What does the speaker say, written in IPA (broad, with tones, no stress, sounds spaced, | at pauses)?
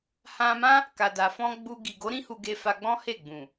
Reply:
h ã˧ m ã˦ | k a˨ d a˨ f ɔ̃˧ ɡ͡b u˧ ɡ i˨ ɡ o˨˦ ɾ ĩ˦ h u˧ ɡ e˧ f a˧ ɡ͡b ɔ̃˦ h e˦˨ ɡ͡b ũ˨